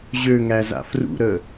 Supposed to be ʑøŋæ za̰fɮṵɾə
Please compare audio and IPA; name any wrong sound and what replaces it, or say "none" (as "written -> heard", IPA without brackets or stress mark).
ɮ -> r